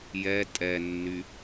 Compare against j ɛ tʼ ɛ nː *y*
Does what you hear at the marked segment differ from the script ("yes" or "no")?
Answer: no